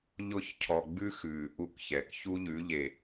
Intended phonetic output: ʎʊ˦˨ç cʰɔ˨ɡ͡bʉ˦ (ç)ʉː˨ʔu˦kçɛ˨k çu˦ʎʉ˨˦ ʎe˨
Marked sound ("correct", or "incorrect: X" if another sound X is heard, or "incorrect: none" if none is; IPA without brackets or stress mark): incorrect: x